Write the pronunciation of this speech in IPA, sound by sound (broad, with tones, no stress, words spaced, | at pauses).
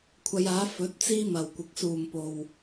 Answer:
kʷʰɐ˨˧jaː˨˥ fɵ˨˥t̚t͡siː˥ mɐ˨˩wkʷɪ˨k̚ suː˨˩m po˨w